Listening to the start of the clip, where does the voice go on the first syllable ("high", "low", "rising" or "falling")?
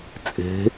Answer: rising